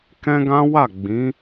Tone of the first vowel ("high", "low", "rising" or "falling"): high